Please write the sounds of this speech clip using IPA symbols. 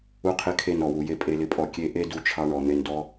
u˧qʰɪ˧ kʰe˧nɔ˨wu˨je˧ pʼe˧lɪ˧pʼɔ˧ kʲe˦ ʔe˦ du˦t͡ʃʰɑ˦ɳɔ˧ n̪e˧ndɔ˦

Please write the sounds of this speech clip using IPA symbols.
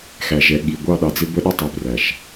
xæ˨ʒɛ˨˦ ɠi˨ ɡʷɑ˦˨ɗɑ˨d͡zɪ˦ bə˦ɗɪ˦ tˤi˨præ˨ʃ

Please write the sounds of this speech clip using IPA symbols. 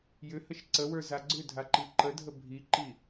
jʏhəʃ ǀəwə˞ zaɡ͡ǀʏdʱa ǃiǃədʱə bʱiǃi

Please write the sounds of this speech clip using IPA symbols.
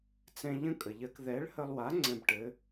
t͡sɛ̃˧ʎə̃˥ kʼə˩ʎɜ˧k ðɛ˨˥ɭhə˧lˠwa˨˥ ŋ͡ǀɛ̃˧bʈɘ˨˥

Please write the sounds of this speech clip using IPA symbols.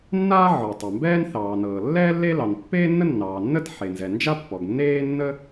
nːaː˥ʕɔ˩tˤa˩mbɛː˥n θɑː˩nɤː˩lːɛː˥ lːe˥ lɑ˩npːeː˥nːə˥ nːɑː˩nːə˥t ħe˩nzɛ˩ nd͡ʒa˥pːɔ˩ɡ nːeː˥nːə˥

